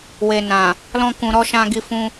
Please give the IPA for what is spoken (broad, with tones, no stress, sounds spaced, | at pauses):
w e˨ n ã˨ | l ɔ̃˧ k ũ˨ ɾ ɔ˧ ʃ ã˧ ɡ i˧ f ũ˧